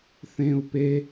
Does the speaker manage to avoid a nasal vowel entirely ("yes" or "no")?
no